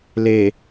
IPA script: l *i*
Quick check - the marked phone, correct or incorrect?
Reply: incorrect